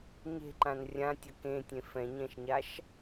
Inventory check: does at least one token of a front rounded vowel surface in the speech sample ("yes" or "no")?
no